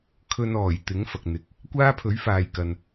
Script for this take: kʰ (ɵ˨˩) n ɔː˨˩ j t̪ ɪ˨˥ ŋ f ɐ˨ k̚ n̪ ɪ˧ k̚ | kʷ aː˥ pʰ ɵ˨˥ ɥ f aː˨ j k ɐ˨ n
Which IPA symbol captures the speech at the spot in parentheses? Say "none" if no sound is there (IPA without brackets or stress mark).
ɵ˧